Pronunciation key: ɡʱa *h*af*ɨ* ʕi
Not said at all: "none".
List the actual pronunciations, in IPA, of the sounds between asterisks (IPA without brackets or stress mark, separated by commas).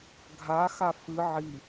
x, ɨ